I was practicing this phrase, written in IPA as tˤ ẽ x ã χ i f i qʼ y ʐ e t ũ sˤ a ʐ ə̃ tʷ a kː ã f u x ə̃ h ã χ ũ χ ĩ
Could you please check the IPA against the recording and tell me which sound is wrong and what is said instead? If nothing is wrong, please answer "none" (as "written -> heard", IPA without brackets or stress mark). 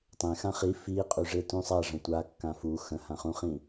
none